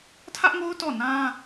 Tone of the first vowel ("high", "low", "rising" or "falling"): high